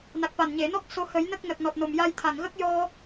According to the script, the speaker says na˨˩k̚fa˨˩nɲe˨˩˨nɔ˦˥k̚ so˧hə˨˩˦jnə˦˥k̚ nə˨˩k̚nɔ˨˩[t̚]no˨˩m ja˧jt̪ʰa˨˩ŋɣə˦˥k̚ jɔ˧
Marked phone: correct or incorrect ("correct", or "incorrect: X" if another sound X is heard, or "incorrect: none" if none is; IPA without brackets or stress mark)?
correct